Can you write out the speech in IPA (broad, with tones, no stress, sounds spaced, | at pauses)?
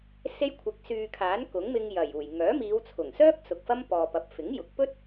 s e˧ j kʷʰ ɪ˨˥ k̚ s yː˨ kʰ aː˨˥ n k ʊ˨˥ ŋ m ɪ˧ ŋ j ɐ˨˩ j uː˨˩ j ŋ œː˨˥ m iː˨˧ w t͡sʰ ʊ˨˩ ŋ s œː˥ k̚ s ʊ˨ k̚ f ɐ˥ m p ɔː˨ p ɐ˨ p̚ f ɪ˨˥ ŋ j ʊ˨˥ k̚ p ɵ˥ t̚